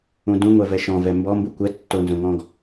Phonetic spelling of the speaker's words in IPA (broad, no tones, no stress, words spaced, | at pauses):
ũdũ ŋʷɛvɛʃɔ̃ vɛmbɔ mbukʷɛ tːonzõŋɔ̃ɡ